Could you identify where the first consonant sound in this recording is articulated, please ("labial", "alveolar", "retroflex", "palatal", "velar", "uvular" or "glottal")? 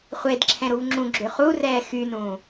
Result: uvular